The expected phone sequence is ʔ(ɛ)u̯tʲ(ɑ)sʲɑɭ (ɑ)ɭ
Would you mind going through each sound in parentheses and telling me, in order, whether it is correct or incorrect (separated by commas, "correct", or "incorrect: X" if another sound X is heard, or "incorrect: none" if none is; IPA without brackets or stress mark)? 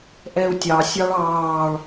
correct, correct, incorrect: ɑː